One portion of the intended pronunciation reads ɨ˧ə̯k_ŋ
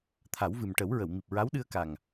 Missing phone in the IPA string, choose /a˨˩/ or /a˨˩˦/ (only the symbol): a˨˩